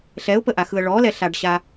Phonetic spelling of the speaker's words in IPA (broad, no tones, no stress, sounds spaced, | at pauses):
ɬ ɛ ʊ̯ p ə ʔ a x ɯ ə̯ ɭ ɔ l ɛ ɬ a ɖ ɕ a